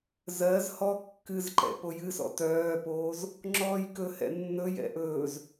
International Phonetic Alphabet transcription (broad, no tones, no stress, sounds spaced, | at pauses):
z ɜ z h ɔ kː ɨ z ǃ ɛ̰ p o j ɨ s ɔ̰ t œː p oː z | ŋ͡ǁ ɔː j k ɵ h ɛ̰ nː ɵ j ɛ̰ ʔ ɵː z